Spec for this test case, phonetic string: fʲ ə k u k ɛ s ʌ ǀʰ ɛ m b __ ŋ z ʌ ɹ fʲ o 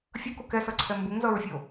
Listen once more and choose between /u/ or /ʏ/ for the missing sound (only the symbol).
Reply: u